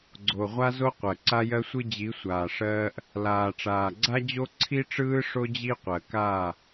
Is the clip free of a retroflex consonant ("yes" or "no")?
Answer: no